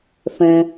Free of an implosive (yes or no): yes